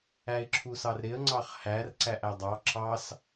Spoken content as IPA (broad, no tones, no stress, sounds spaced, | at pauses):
æ ɪ̯ ǁʰ u s ɑ r ɾ ɪ ə̯ ŋ͡ǀ ɑ χ h æ r ǀ æ ʔ æ dˤ ɑ ǁ ɑ s